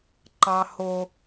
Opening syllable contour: high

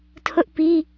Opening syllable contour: high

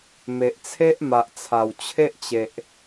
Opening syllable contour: low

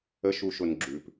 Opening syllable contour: rising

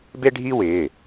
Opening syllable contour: high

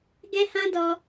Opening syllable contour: high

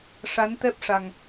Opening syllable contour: rising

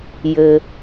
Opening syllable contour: low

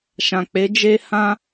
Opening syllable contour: low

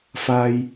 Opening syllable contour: high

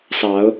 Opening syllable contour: rising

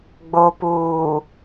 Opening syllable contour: low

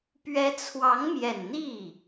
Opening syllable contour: rising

